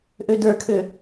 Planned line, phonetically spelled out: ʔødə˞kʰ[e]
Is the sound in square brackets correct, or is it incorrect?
incorrect